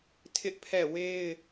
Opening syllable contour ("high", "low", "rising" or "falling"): high